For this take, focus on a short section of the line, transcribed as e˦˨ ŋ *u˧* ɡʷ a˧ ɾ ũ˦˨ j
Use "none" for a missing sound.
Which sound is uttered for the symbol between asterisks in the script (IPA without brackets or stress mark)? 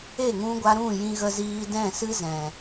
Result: ũ˧